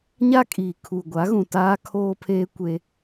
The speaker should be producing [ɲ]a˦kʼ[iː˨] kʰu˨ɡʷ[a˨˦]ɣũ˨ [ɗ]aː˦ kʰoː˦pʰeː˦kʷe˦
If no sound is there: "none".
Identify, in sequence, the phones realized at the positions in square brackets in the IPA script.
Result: ɲ, iː˨, a˨˦, t

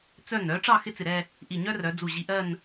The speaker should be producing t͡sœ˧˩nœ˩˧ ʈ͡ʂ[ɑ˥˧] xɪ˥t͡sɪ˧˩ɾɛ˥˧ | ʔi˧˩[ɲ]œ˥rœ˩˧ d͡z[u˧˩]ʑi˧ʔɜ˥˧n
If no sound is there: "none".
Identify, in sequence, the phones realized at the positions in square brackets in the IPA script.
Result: ɑ˥˧, ɲ, u˧˩

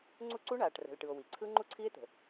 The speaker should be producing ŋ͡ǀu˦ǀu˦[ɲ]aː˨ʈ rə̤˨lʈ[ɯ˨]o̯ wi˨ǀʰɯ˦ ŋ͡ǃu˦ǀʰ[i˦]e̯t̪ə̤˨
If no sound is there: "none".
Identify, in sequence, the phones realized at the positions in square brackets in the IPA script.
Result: ɳ, ɯ˨, i˦

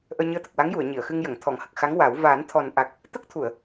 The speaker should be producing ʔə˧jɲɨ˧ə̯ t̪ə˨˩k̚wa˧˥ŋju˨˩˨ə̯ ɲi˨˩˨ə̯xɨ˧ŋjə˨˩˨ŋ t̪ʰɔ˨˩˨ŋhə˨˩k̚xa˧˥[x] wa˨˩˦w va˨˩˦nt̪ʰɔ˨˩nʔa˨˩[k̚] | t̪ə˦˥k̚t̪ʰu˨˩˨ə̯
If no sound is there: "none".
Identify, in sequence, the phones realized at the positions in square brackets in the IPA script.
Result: ŋ, k̚

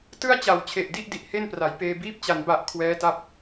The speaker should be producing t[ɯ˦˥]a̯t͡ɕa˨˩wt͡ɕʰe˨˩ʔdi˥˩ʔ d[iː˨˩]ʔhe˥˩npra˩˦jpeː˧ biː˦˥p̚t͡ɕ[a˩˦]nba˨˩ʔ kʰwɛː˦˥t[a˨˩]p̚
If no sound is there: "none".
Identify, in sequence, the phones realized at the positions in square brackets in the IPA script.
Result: ɯ˥˩, i˨˩, a˩˦, a˦˥

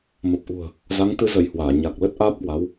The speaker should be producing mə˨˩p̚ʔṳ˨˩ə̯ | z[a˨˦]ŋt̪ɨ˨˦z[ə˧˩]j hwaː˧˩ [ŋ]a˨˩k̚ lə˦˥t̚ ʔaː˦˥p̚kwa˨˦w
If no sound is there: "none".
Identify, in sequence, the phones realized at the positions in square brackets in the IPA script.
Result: a˨˦, ə˧˩, ɲ

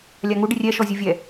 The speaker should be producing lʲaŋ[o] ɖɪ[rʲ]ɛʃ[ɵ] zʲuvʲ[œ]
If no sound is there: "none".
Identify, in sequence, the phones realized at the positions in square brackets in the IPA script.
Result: u, rʲ, ɔ, ɛ

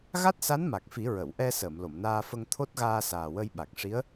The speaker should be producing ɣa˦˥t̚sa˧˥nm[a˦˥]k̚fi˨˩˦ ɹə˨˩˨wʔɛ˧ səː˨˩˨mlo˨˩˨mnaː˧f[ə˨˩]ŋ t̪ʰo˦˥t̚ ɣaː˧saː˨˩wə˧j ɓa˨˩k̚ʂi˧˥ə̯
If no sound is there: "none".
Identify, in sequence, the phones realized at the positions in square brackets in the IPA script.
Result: a˨˩, ə˧

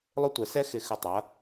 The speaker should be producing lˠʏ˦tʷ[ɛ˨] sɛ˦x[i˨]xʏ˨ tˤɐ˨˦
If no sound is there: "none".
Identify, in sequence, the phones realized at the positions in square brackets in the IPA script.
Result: ɛ˨, ɪ˨

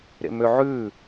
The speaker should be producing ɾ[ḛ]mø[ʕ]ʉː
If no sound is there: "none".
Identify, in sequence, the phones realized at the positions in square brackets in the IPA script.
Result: ḛ, ʕ

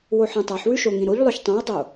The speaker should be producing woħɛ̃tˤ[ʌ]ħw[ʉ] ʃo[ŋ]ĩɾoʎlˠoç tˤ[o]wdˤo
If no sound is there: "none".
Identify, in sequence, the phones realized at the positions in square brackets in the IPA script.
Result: a, ʉ, ŋ, õ

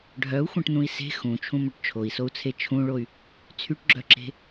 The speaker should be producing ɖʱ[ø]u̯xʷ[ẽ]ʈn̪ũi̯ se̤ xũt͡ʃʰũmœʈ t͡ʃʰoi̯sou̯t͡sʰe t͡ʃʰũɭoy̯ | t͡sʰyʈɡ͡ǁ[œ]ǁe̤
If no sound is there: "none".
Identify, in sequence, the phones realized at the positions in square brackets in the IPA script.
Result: œ, ẽ, œ

